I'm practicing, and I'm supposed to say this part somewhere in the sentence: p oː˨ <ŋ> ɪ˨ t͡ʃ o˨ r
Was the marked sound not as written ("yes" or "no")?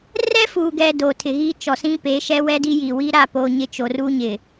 yes